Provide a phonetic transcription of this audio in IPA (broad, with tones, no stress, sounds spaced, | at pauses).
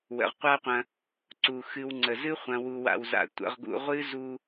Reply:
w ə̰˩ ʁ qʷ a˦ qʷ ɐ̃˨ | ǀ u˩ x ɨ˨ w ŋ͡ǀ ə˩ z ɨ˥ χʷ ɐ̃˨ w u˨ w a̰˨ w z a̰˨ tʷ ə̰˨ ʁ ɡ ṵ˨ ʁʷ ɨ˦ z u˦